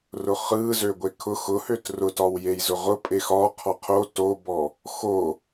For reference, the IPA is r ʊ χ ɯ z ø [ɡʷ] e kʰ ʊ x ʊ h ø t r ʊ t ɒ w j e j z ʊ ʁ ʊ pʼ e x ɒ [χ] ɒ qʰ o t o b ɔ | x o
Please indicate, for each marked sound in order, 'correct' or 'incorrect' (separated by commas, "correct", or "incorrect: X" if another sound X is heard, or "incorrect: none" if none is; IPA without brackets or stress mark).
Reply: correct, incorrect: qʰ